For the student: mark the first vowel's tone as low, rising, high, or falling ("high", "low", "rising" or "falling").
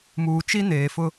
low